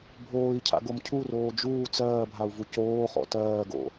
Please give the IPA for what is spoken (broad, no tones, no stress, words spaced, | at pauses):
bʱoːi̯cʰa̰ɡom cʰuroː d͡ʒuː t͡sɜːbʱau̯vu coːχɔ̰ tɜːɡo̰